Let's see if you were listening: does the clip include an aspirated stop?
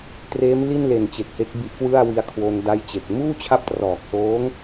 yes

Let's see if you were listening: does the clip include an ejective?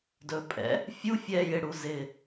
yes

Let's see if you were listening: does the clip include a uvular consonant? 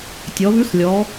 no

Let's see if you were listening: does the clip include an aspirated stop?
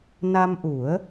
no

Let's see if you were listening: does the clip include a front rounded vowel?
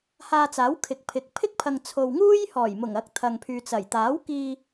yes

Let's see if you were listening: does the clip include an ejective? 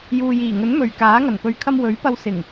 no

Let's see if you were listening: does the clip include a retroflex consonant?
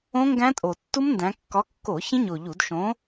no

